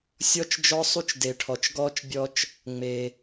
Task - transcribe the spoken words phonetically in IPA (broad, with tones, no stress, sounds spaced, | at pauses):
sʲ ɔ˦ t͡ʃ d͡ʒ ɔ˦ sˤ u˦ t͡ʃ d e˨ ʈʰ ɔ˨ t͡ʃ ɡ ɔː˦ t͡ʃ bʲ ɔ˦ t͡ʃ | ŋ͡m e˨